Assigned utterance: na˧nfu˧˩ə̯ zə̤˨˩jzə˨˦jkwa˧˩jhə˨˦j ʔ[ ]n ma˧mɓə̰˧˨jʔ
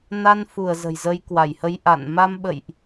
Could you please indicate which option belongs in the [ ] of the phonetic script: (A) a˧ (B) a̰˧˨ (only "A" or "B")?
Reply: B